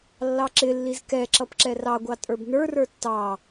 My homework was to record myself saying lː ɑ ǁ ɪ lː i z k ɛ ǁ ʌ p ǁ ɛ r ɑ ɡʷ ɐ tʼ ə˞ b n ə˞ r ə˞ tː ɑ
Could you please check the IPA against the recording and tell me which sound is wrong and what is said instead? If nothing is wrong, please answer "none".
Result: ɐ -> ɑ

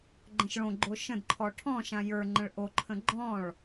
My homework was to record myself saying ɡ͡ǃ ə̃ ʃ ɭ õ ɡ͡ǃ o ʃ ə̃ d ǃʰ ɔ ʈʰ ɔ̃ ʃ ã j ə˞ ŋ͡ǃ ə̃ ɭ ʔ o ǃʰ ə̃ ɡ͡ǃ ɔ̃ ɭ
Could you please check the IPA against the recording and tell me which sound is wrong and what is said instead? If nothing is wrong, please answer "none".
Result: none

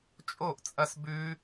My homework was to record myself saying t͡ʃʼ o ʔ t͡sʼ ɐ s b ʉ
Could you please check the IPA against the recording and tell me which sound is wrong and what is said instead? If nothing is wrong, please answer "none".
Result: none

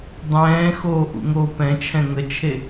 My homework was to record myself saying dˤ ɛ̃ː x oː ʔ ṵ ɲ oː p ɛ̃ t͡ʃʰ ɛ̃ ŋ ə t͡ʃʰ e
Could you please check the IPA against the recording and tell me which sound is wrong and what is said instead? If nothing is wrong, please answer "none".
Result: ɲ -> ŋ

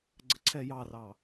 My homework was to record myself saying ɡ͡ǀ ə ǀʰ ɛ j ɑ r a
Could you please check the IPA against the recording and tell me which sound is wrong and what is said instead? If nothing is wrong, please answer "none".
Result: a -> ɑ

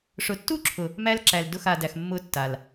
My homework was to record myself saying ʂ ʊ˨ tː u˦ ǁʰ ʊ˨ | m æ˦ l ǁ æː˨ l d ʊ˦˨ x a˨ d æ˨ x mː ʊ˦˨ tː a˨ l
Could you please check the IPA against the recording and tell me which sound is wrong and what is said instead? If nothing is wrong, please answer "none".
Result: æː˨ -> æ˨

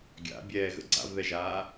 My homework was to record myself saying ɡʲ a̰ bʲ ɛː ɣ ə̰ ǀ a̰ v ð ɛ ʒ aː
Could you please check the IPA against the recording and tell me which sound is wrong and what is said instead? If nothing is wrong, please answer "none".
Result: none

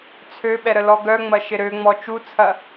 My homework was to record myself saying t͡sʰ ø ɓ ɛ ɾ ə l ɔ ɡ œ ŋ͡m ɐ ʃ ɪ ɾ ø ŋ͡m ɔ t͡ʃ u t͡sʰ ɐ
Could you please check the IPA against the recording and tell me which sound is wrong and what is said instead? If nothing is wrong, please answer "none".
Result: none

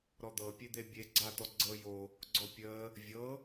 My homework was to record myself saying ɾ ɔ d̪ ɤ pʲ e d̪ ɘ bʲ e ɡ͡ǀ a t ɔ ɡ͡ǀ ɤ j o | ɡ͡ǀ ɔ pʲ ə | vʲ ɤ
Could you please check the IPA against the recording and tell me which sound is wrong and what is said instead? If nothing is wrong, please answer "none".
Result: ɘ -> e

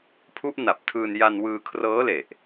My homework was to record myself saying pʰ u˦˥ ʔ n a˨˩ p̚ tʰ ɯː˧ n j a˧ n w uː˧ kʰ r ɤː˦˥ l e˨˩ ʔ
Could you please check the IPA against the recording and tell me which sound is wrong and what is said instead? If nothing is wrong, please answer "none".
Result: uː˧ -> ɯː˧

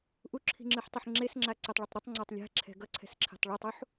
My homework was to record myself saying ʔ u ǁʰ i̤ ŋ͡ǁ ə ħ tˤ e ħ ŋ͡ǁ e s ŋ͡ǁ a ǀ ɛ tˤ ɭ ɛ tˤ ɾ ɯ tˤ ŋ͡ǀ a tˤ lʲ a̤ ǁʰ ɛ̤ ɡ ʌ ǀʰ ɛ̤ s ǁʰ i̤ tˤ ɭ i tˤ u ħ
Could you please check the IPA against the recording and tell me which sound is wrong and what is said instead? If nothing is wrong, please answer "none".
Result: ə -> ɯ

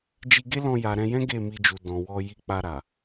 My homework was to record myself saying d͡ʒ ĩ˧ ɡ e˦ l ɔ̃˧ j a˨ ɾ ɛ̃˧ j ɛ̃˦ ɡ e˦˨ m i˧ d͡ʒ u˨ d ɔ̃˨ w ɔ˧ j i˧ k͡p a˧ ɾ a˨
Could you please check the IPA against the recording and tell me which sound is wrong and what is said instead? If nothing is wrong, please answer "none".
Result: ĩ˧ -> i˧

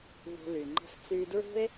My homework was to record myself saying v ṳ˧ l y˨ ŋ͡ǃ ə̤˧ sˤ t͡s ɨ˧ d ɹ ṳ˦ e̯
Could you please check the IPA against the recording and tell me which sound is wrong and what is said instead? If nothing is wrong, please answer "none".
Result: ɨ˧ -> y˧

